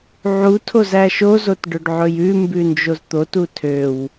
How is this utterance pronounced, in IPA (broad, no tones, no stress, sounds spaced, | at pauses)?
ʕ u tʰ o z æ ʃ o z o t ɖ ɵ ɖ ʕ ɵ j ʉ m b ʉ n d͡ʒ o z t̪ o t u tʰ ø w